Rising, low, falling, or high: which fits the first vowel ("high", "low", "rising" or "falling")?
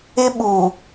high